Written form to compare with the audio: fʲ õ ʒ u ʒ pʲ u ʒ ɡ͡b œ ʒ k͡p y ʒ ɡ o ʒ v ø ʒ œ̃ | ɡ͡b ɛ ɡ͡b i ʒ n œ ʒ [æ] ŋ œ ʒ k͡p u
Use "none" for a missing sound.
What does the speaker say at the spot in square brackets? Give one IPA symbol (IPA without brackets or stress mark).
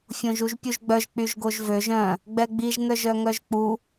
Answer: œ